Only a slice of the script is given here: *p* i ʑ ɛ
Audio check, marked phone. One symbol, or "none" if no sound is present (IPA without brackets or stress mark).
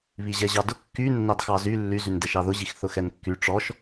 β